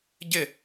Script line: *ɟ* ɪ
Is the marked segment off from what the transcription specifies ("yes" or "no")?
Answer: no